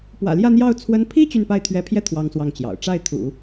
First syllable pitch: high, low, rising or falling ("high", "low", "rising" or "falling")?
low